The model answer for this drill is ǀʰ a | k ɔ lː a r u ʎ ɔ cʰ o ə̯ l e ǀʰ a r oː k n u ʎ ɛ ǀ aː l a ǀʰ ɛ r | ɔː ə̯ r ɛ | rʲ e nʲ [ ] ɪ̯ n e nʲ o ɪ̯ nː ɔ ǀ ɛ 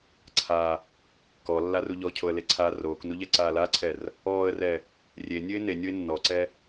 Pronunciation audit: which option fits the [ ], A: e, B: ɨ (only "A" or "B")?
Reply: B